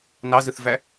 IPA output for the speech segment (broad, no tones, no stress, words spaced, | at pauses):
nɑzɯθvæ